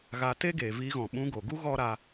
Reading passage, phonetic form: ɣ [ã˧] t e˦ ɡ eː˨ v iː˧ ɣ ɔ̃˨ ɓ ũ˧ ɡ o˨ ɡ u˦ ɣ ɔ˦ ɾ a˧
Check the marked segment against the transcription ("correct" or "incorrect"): incorrect